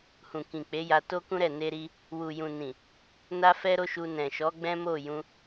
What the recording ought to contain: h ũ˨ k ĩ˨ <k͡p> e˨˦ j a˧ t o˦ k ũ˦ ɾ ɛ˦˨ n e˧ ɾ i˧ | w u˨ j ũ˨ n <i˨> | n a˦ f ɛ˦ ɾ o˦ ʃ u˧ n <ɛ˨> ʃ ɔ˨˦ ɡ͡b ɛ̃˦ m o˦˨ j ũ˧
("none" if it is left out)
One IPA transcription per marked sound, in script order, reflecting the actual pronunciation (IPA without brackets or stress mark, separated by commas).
k͡p, ĩ˨, ɛ̃˨